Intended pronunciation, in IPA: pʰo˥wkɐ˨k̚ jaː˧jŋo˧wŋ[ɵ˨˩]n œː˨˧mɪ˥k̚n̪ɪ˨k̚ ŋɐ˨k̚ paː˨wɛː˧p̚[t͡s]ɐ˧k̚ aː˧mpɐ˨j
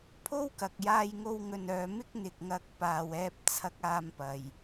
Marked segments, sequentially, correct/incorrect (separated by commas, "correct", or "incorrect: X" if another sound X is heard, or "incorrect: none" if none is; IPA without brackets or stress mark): incorrect: ɵ˨, incorrect: t͡sʰ